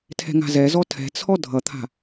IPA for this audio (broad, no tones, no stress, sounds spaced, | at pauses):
tʰ ɛ̤ ŋ a̤ z ɛ z ɔ tʰ ɛ̤ t͡sʰ ɔ dʱ ʌ t̪ʰ a̤